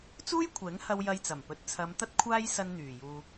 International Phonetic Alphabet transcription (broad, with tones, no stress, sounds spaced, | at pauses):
t͡s uː˥ j kʷʰ ɛː˨˥ ŋ h ɐ˧ w j ɐ˧ j t͡s ɐ˨˩ m p ɵ˨ t̚ t͡sʰ ɐ˨˧ m t̪ ɐ˥ t̚ kʷʰ aː˥ j s ɐ˧ n n̪ yː˨˩ j uː˧